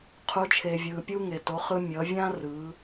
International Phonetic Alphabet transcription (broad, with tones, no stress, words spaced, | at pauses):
qʰu˩˧t͡ʃʰe˩vʲɯː˩ pʲu˥ŋe˩ to˩˧χɯ˧mʲʌ˩˧ vʲã˥rɯ˩˧